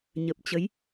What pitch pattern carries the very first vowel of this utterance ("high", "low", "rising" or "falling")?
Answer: low